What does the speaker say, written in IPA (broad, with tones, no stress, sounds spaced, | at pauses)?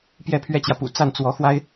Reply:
p j ɛ˥˩ pʰ ɥ ɛ˥ t͡ɕ j ä˨ p ṵ˨˩ t͡s a˥˩ n t͡s w ɔ˧˥ x w a˥ ɪ̯